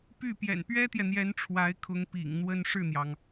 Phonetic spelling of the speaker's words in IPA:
p y˥˩ p j ɛ̰˨˩ n p ɥ ɛ˥ t̪ j ɛ˨ n̪ j ɛ˧˥ n ʈ͡ʂʰ w a˧˥ ɪ̯ kʰ ʊ˧˥ ŋ p ḭ˨˩ ŋ n̪ w ə˥ n ʂ ɻ̩˥˩ n̪ j ɑ˩ ŋ

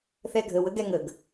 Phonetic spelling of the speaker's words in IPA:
θ ɛ ɡʱ ə w ə ɡ ɛ ŋ ə ɡ

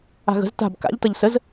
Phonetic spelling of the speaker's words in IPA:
a̤ ɣ ə̤ z t a̤ b k a̰ ʎ t ʌ ʎ s ə z

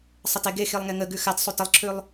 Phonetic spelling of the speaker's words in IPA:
sˤ ə t e ɡ e x i lˠ ŋ e ŋ ə ɡ ʉ x a t sˤ u t ə lˠ ǁʰ ʉ lˠ

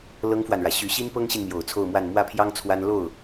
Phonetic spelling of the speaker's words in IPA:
l ɤ˥ ŋ f w a˨ n ɻ ä˩ ɕ y˧˥ ɕ i˥ n p ɤ˥ ŋ ɕ i˨ n m j o˨˩ ʊ̯ t͡sʰ o˥˧ ʊ̯ m w a˥˧ n m w ä˥˩ pʰ j ɑ˥ ŋ t͡sʰ w a˥ n l o˥˩ ʊ̯

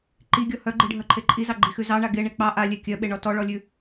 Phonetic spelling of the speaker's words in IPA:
ǃ i ɡʲ ɔ h œ ɡ͡ǃ i ɖʱ œ ǃʰ e ǃʼ i z ɑ ɡ͡ǃ i x ʉ z ɑ ɳ a ɡ e ɳ e k͡p ɑ ʔ a lʲ e kʲ œ ɓ e ɳ ɔ t ɔ ɭ ɔ lʲ ʉ

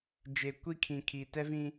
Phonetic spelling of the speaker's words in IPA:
d͡ʒ e˨ kʷ i˦ kʰ ĩ˨ kʰ i˨ t ɛ˦ v ĩ˦

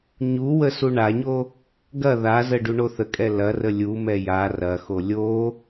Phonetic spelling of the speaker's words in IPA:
ɲ u w ə s u ɳ a ɲ o | ɡ ɐ ð a z ə ɖ u ɳ o θ ə kʼ ɛ l ɐ r ə lʲ u m ɛ j a r ɐ x o lʲ o

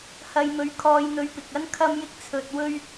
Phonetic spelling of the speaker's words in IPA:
h ɐ˧ j m ɵ˧ ɥ kʰ ɔː˧ j n̪ ɵ˧ ɥ p ɪ˨ k̚ ɐ˥ n kʰ ɐ˥ m j ɪ˥ k̚ t͡sʰ ɵ˧ t̚ w ɵ˥ ɥ

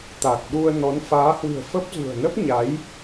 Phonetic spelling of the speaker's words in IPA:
t̪ a˨˩ k̚ ɗ u˧ ə̯ n ɔ˨˦ n f aː˨˦ h w ɨ̤˨˩ ə̯ f ə˦˥ p̚ z ṳ˨˩ ə̯ n ə˦˥ p̚ ɲ a˨˦ j

